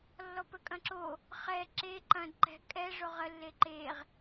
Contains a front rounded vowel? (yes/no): no